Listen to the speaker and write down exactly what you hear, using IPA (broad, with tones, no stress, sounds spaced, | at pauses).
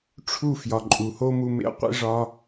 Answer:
ʈ͡ʂʰ u˦˨ f j ɒ˨ ǃʼ u˨ h o˦ m u˧ m ḛ˧ qʷ ḭ˧ ʐ ɒ˧